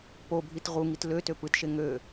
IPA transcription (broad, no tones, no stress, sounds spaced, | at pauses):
p o bʱ i t ʁ u ŋ i t l ø t ø p ɯ t ʃ e ŋ ø